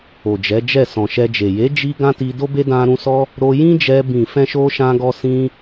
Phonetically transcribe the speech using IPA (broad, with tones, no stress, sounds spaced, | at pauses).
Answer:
o˨ d͡ʒ ɛ˨˦ d͡ʒ ɛ˦˨ s ɔ̃˨ ʃ ɛ˧ d͡ʒ e˨ j e˨˦ d͡ʒ i˧ ɡ ã˦ t i˧ d o˦ b e˦ d ã˦ ɾ ũ˦ s ɔ˦ | ɾ o˧ j ĩ˦ d͡ʒ ɛ˧ b ĩ˨ f ɛ̃˧ ʃ o˧ ʃ ã˧ ɡ ɔ˧ s ĩ˦